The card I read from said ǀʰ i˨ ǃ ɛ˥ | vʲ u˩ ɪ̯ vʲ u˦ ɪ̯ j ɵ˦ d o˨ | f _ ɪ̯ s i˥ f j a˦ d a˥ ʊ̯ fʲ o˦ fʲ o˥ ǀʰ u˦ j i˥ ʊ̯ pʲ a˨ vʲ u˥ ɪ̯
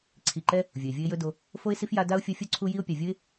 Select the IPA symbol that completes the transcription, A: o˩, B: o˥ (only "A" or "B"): B